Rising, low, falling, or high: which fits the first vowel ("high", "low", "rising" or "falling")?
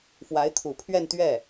rising